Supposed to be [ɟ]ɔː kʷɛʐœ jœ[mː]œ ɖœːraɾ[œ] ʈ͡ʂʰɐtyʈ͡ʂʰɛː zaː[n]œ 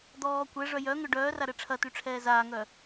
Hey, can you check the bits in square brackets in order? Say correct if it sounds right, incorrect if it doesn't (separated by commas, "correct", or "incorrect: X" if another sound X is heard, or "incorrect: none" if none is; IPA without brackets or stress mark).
incorrect: d̪, incorrect: ŋ, incorrect: ɛ, incorrect: ŋ